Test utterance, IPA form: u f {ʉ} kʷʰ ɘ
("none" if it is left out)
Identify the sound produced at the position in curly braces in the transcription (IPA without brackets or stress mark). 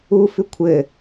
ʉ